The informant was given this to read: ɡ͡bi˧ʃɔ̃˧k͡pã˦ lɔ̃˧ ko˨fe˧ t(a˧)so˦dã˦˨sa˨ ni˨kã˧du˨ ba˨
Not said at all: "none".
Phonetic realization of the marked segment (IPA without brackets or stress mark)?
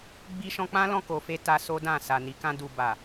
a˧